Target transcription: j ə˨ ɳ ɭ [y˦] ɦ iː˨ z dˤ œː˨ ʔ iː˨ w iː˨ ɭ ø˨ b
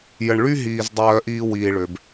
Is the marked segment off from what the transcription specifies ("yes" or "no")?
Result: no